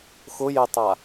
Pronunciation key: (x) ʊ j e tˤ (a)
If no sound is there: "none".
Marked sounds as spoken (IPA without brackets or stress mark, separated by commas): x, a